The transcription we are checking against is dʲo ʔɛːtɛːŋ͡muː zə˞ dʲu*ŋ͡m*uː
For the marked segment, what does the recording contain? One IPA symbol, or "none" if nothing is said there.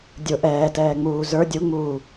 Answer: ŋ͡m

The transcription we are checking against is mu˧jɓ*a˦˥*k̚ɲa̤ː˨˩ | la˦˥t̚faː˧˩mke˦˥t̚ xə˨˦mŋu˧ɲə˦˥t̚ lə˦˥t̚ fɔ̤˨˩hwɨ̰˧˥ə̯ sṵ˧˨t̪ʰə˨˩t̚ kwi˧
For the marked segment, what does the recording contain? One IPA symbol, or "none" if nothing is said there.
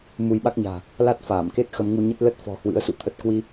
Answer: a˦˥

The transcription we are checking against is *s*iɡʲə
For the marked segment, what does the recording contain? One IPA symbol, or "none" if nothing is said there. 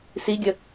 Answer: s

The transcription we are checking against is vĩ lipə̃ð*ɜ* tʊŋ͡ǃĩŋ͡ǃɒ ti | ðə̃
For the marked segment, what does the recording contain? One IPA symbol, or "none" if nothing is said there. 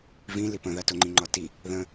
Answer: ɜ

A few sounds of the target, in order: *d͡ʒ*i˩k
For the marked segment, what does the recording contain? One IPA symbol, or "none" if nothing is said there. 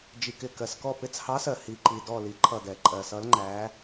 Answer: d͡ʒ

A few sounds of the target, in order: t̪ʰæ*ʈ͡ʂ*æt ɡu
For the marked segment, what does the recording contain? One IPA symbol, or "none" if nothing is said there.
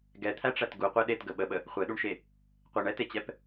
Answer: ʈ͡ʂ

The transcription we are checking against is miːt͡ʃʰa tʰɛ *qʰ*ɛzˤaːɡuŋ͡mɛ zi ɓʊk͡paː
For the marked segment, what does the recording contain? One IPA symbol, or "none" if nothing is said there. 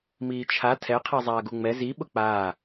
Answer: qʰ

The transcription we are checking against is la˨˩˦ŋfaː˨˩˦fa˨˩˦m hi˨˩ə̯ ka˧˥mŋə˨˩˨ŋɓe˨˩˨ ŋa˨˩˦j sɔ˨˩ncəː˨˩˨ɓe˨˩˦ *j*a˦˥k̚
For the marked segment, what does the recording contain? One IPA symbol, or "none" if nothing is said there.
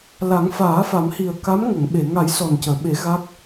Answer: ɣ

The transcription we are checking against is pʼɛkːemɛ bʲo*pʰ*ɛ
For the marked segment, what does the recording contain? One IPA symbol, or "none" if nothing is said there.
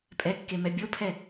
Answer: pʰ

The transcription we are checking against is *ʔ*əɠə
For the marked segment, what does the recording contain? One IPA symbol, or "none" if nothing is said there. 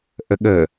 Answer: ʔ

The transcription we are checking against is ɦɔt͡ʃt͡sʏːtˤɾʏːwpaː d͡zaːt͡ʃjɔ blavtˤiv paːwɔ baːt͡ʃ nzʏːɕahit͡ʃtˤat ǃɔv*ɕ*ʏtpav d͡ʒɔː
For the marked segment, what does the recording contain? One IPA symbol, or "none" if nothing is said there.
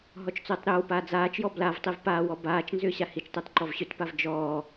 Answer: ɕ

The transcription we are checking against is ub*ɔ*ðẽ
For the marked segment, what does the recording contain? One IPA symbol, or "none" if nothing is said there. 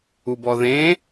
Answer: ɔ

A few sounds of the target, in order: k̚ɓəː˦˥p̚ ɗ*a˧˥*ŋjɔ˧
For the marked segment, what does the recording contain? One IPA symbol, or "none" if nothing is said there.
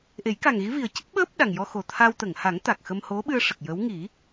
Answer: a˨˩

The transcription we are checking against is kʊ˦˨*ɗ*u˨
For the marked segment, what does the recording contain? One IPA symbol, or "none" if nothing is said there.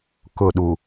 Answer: ɗ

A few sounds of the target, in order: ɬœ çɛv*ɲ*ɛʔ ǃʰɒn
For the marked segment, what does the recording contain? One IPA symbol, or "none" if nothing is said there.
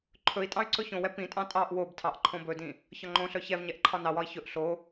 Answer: ɲ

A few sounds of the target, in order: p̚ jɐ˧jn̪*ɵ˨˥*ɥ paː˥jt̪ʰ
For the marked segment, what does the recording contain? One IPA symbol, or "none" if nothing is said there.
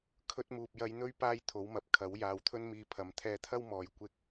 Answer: ɵ˥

